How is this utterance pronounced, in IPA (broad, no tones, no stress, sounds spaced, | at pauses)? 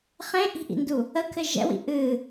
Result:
χ ẽ ʔ i̤ ʔ ḭ n d u | ə kʰ ɘ ʒ ɛ̰ w ḭ ʔ ɨ